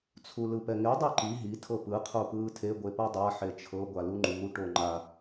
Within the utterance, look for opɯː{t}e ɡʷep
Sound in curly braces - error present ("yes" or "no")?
yes